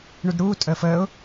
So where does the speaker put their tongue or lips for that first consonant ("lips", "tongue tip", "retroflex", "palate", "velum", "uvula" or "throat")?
retroflex